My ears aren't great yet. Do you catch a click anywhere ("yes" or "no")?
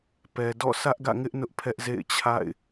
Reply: no